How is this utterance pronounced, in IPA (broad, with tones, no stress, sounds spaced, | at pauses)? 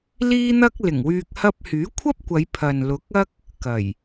l iː˥ n̪ ɐ˥ k̚ l ɪ˨˩ ŋ w yː˧ k̚ h ɐ˧ p̚ h yː˨˥ kʷʰ ɐ˥ p̚ kʷ ɐ˨˧ j pʰ ɐ˨ n l ʊ˨˥ k̚ ɐ˥ k̚ | k ɐ˨˩ j